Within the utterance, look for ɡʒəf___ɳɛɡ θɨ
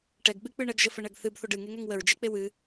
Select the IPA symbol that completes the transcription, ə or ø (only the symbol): ə